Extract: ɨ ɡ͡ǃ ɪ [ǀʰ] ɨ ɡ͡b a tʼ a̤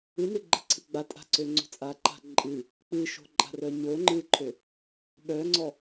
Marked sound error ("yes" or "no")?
no